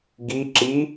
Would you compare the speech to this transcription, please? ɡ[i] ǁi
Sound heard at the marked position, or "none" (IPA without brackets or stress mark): i